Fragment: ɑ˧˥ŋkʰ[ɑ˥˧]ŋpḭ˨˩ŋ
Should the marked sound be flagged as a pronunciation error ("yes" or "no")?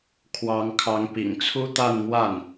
yes